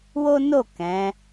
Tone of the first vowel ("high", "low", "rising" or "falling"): high